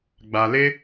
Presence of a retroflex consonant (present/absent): absent